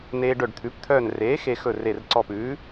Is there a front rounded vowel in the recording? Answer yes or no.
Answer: yes